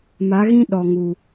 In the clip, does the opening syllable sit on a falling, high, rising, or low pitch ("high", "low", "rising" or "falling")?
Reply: rising